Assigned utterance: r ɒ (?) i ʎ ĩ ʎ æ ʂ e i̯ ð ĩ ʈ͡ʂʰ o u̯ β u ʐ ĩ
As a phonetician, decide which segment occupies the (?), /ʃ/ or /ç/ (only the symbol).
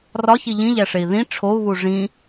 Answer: ç